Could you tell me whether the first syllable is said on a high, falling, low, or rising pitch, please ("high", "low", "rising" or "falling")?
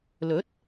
rising